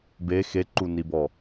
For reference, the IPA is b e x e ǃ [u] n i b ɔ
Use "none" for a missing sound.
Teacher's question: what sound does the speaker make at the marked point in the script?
u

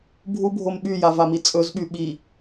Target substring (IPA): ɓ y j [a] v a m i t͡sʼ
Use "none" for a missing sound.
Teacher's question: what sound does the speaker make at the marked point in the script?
a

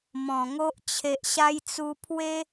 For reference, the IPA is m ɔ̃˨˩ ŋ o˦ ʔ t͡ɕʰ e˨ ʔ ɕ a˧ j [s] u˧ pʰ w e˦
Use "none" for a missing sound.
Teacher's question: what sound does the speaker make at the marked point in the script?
t͡s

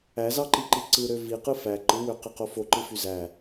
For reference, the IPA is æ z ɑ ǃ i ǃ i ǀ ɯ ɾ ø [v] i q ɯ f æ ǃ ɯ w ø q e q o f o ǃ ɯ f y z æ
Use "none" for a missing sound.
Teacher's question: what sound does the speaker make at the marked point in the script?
v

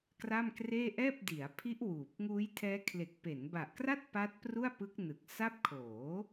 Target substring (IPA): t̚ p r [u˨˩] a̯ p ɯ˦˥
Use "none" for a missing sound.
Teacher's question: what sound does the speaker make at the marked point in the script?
u˥˩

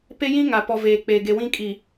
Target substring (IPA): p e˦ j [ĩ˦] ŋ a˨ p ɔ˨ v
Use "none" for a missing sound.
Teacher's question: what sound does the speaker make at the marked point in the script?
ĩ˦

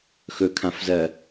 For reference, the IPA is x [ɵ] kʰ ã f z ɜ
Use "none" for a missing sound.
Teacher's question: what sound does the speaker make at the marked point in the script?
ɵ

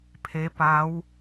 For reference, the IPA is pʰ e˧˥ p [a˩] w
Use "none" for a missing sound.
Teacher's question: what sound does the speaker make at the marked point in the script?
a˧˥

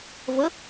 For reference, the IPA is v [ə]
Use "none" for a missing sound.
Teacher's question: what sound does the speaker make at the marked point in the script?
ə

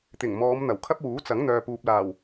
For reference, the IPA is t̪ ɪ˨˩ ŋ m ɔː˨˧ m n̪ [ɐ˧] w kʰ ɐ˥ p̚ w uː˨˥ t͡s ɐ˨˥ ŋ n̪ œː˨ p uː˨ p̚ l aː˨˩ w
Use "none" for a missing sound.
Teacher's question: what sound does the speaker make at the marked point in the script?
ɐ˨˩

